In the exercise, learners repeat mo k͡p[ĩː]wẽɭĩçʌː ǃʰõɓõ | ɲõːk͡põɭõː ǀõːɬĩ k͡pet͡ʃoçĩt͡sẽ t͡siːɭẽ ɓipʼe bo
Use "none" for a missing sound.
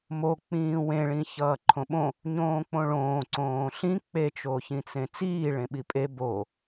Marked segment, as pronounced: ĩː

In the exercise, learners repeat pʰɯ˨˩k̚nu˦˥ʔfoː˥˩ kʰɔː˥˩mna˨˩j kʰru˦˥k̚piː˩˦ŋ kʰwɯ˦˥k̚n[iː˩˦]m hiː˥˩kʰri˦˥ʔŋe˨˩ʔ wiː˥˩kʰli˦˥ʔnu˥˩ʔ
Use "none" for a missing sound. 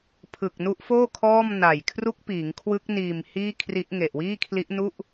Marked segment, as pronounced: iː˨˩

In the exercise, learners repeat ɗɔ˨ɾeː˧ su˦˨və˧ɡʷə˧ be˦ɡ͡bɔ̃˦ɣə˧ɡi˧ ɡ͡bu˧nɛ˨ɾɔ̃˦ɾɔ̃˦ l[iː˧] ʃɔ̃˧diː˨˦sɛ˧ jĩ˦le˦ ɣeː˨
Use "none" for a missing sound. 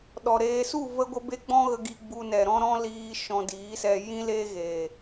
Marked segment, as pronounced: iː˧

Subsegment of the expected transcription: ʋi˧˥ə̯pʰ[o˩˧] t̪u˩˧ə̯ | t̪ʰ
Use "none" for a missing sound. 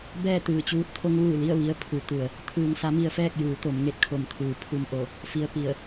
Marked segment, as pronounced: u˩˧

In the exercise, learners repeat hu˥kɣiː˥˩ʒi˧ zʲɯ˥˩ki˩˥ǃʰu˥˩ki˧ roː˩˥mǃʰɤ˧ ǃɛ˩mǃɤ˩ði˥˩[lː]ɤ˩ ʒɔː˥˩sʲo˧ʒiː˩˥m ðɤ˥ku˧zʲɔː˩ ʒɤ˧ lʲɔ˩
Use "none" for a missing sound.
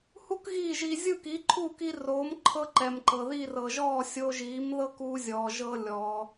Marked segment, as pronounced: r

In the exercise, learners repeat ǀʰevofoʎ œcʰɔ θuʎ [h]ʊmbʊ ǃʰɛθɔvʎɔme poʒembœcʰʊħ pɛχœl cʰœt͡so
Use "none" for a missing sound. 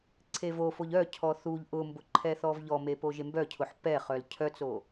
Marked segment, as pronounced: ʔ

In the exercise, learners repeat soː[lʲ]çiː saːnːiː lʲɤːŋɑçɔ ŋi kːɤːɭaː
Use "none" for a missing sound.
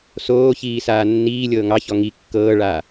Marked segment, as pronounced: none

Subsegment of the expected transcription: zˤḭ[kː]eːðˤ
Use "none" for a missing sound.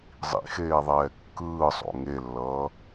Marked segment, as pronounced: x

